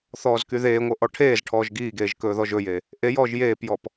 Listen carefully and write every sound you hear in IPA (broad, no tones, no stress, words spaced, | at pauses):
θɔːzkyðeːŋʷɤ ʔɔʈʰeːzʈʰɔːʒ ɡiːɡeːʒ kɵːðɔʒɵje | ʔejɔːʒ jeːpjɔp